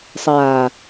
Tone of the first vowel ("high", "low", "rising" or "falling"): low